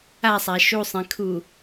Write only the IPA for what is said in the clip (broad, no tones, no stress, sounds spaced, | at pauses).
a sˤ æ ʃ u sˤ ẽ kʰ u